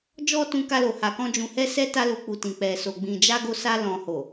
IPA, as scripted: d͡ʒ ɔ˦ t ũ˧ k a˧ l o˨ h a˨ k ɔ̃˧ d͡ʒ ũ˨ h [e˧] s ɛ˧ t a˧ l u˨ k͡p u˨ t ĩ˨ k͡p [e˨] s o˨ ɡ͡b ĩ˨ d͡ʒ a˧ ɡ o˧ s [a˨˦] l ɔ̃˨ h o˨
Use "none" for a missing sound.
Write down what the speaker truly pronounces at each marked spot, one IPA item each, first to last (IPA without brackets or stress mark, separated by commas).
ɛ˧, ɛ˨, a˧